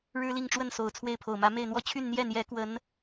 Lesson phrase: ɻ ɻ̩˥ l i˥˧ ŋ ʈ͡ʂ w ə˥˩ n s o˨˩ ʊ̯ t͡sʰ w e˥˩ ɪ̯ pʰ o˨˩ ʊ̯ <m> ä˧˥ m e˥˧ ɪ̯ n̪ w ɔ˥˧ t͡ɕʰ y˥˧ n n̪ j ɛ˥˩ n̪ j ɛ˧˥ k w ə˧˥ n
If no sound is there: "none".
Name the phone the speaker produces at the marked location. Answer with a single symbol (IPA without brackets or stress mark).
m